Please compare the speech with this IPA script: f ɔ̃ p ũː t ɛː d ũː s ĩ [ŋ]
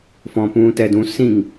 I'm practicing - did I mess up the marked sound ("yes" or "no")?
no